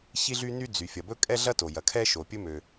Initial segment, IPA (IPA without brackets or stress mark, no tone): ç